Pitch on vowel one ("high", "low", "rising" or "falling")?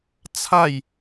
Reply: falling